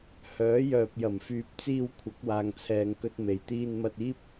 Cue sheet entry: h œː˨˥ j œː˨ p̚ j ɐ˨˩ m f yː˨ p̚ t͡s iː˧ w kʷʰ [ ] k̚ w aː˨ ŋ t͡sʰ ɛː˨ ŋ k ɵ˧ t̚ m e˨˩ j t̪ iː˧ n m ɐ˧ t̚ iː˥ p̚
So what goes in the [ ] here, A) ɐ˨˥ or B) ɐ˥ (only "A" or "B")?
A